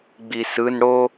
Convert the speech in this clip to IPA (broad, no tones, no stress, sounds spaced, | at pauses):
ɡ͡b i s ɯ n ɽ o